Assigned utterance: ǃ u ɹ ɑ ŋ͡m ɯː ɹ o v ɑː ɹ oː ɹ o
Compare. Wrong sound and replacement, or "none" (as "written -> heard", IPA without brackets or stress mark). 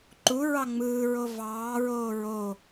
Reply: none